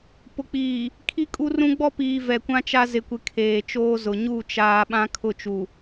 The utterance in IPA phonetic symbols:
pʊ˨k͡piː˨ | kʰi˦kʼu˦rũ˦ ɡ͡bɔ˦piː˨ vɛ˨kʷã˦t͡ʃa˦ zɪ˨kʷɪ˨ kʰeː˨t͡ʃoː˦zʊ˨ ɲu˦˨ t͡ʃaː˨ ɓã˦kʰʊ˦˨t͡ʃu˨

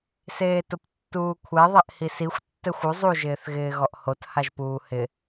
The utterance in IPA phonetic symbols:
seːtʊptːuːkʷʰɛ ðˤɛʔhisixʷ tːɛxʷu zˤu ʒɪːθɣɪːɣɔʔhot haʒpuːhɪ

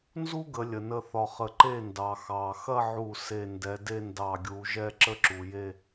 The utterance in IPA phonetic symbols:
nzu˥ɡə˩˧ lʲə˩nə˥˩θɒ˧˩χə˧˩ ǃe˥˩ndɑ˩ xɑ˩xɐ˥˧ʕu˧˩ se˧˩ndɛ˩˧de˥˧ ndɑ˧˩ɡʲu˩˧ ʒɛ˥˧ǁə˥ǁu˩je˥˧

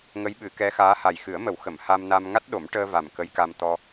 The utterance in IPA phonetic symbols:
ŋə˧˥jɓɨ˨˩˦kɛ˧˥xaː˧˥ ha˨˩jxɨ˨˩˦ə̯mə˨˩˦wxə˨˩˨m ha˧mna˧m ŋa˦˥t̚ɗo˨˩˦mʈəː˧va˨˩m kə˧˥jka˧mt̪ɔ˧

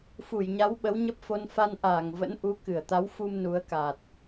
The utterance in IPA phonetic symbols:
fu˧˩jɲa˨˦w ɓə˨˦wɲə˦˥p̚fo˧n fa˧nʔaː˧˩ŋvə̰˧˥nʔu˨˦ kɨ˧˩ə̯t̪a˨˦wfu˧m nu˨˦ə̯ka˨˩t̚

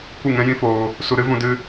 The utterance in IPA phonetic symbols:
kʷɨ˦˨ŋɛ̃˦jĩ˦foː˧ | su˧ɾɨ˦vũ˧ dɨ˦

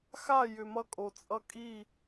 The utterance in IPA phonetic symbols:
xa˦˨jʏ˨mʌ˧ kʼo˨ t͡sʼʌ˧ kʼiː˦˨

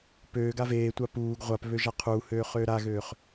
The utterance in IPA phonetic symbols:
pøːɡa veːtʷa puːɡ ʁʷapβø ʒaqʰuːhøː χøːɾaɣøːχ

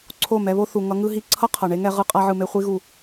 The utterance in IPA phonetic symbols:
ǀʰo˦˨mɛ˧βo˦θu˨ ŋʌ˧ŋɯ˦ ɦi˧ǀʰʌ˦ qʰʌ˨ɳe˧ŋɛ˧ ʁɯ˧ qʼa˧ʕɯ˨me˧χʷi˧ ɣu˨

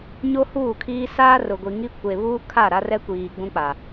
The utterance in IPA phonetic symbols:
ɲo˦huː˦˨kʰiː˦ saː˦rʊ˨ɡʷi˨ŋi˦ kʷe˨βuː˦kʰa˦˨ ɾa˦rɛ˦kʷiː˨ ɡ͡bũ˦k͡pa˨

